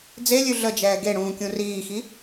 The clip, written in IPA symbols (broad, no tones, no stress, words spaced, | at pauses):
d͡zelʲʉ ɮəd͡ʒɛː ɡeɽũːkʲũ riːxi